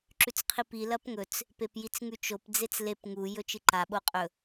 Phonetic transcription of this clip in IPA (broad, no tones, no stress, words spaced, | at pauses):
ǁʉt͡sqʰipi lɐpŋɵt͡s | pepjit͡sŋʉt͡ʃop d͡zet͡slep ŋu jɵt͡ʃɨǃa ɓoqʼɵ